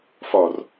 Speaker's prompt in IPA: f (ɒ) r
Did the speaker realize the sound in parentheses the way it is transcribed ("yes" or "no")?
yes